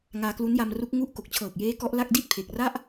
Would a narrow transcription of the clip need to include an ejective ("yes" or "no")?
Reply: no